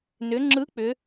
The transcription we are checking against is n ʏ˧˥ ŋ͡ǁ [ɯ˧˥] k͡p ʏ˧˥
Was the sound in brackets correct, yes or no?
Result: yes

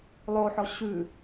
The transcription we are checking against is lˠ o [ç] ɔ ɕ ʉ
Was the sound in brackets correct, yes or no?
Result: no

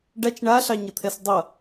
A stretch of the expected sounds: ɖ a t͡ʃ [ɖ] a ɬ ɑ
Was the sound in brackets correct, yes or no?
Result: no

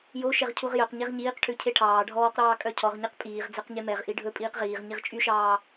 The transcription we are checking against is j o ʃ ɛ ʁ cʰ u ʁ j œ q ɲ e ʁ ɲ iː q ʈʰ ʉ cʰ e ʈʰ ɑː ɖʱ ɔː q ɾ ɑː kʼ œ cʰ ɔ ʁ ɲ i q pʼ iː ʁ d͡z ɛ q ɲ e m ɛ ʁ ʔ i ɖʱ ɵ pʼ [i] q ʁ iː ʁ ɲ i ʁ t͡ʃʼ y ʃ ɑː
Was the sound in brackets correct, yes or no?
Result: no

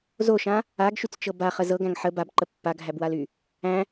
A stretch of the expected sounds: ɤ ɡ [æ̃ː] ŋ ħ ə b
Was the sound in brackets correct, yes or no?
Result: no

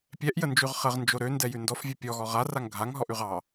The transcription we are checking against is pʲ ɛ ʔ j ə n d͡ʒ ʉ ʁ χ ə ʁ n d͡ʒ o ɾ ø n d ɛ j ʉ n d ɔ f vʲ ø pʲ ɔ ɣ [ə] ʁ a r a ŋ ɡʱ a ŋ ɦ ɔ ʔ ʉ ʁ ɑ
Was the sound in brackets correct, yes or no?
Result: no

